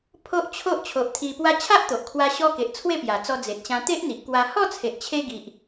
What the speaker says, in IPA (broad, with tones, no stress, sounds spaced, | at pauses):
pʰ o˦ ʔ t͡ɕʰ o˦ ʔ t͡ɕʰ o˨ ʔ t̪ʰ i˧ p w a˦ t͡ɕʰ a˦ ʔ t̪ o˨ ʔ kʰ w a˧ ɕ ɔ˧ k e˨ ʔ t͡sʰ w e˥˧ p j a˨˩ t͡s ɔ˧ d͡z e˨ t̚ ɕ ã˧ t̪ e˦ ʔ n̪ i˨ ʔ k w a˧ h ɔ˥˧ t͡sʰ e˨ ʔ t͡ɕʰ e˧ ɡ i˨ ʔ